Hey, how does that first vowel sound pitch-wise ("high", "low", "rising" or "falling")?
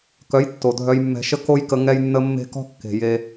rising